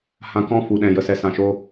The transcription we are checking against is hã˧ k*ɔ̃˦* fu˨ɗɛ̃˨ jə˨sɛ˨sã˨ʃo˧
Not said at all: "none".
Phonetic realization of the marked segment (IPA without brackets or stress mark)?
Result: ɔ̃˦